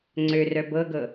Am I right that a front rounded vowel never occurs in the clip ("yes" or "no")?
no